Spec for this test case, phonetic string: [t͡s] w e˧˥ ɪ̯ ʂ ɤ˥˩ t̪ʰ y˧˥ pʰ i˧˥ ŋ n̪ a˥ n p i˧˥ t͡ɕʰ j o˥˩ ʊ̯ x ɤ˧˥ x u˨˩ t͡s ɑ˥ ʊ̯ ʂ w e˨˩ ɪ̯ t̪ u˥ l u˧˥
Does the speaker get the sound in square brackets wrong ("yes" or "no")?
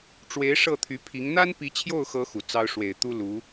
yes